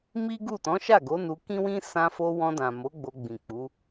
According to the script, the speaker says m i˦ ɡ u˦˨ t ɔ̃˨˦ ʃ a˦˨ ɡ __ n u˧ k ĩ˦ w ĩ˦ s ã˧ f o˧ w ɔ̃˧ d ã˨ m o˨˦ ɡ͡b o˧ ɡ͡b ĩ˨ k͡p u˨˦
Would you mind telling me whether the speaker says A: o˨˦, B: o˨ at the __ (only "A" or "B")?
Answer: A